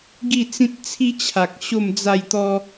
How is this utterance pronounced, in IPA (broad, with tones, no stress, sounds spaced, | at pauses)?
ɡ i˥˧ t͡s ĩ˦ t̚ t͡sʰ i˦ t͡ɕʰ a˨ k̚ ɕ o˥˧ m d͡z a˥˧ j t̪ ɔ˦